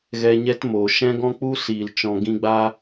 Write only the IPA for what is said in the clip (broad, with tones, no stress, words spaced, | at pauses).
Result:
ɣɛ˧ɲɛ˦tmoː˨ ʃɛ̃˦ɡɔ̃˦k͡pu˦ siː˨l t͡ʃɔ̃˧ɡĩ˦ ɡ͡ba˦